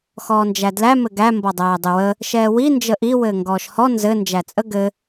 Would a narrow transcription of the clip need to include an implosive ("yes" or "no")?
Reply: no